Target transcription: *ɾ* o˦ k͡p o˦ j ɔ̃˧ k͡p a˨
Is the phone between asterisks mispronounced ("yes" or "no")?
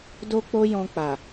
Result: yes